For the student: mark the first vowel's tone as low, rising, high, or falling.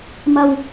low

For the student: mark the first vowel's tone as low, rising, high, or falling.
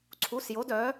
rising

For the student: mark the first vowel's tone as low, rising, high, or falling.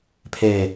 falling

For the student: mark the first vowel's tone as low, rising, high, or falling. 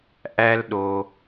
high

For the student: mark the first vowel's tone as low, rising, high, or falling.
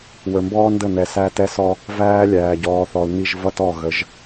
low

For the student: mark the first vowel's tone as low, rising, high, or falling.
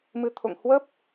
rising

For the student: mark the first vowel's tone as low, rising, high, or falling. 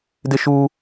high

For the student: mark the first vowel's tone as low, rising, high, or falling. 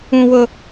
high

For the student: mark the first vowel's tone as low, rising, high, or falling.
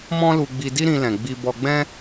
high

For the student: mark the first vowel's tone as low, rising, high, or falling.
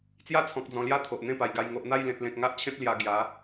falling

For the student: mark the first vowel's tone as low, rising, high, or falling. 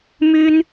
high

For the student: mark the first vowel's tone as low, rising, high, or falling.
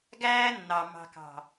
high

